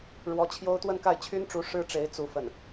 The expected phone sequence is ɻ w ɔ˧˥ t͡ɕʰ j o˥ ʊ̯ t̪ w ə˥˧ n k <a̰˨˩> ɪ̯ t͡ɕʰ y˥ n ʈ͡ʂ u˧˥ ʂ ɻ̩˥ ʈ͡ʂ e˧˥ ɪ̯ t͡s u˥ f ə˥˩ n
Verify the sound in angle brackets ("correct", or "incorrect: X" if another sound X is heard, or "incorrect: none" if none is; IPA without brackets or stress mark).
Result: incorrect: a˥˩